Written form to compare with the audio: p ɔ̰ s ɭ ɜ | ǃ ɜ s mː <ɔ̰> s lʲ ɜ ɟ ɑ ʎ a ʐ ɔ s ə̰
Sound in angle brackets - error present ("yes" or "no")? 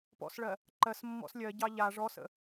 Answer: no